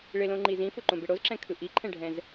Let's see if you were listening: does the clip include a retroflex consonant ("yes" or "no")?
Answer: yes